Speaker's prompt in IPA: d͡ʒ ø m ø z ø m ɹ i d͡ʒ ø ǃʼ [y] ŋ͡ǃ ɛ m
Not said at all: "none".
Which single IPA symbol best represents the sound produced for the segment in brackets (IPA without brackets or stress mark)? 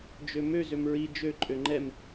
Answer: ø